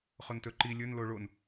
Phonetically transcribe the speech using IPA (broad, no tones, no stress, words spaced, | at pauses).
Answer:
χontɵǃi lʲɵn loɭon